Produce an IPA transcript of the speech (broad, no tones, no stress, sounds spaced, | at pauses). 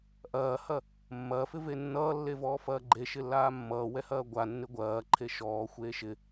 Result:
ʔ ɐː h ɐ | mː ɐː f ɪ v e nː ʌː lː e v ɔː f ɐː ɡ͡ǃ e ʃ ɪ lː aː mː ʌː w ɛ h ɐː ɡʷ a nː ɪ ɡʷ ɐː ǃʰ e ʃ ɔː xʷ eː ʃ ɪ